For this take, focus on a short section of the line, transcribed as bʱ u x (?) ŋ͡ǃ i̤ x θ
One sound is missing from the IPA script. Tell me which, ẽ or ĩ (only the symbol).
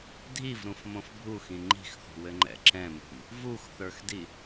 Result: ĩ